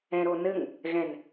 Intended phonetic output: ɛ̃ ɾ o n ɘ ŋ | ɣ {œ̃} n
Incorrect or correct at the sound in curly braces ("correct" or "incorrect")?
incorrect